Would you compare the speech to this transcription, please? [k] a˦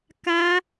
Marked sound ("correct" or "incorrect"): correct